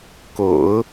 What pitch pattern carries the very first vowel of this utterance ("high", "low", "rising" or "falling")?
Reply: low